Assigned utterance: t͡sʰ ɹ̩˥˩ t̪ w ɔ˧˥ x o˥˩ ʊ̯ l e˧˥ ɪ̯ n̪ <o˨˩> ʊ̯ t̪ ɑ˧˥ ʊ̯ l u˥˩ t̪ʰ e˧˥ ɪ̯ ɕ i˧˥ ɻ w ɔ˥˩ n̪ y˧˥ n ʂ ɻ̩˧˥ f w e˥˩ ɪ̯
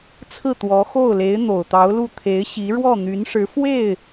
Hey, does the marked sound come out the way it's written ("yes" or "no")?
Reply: yes